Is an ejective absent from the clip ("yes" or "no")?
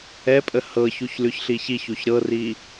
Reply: no